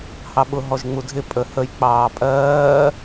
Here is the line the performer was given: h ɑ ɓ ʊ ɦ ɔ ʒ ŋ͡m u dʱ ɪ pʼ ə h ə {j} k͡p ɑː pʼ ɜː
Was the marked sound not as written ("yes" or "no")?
no